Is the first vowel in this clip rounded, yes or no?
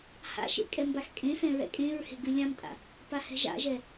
no